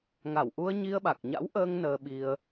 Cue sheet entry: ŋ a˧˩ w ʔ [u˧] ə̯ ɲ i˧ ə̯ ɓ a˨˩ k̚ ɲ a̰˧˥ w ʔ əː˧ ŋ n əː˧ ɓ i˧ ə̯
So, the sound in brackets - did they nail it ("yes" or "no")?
yes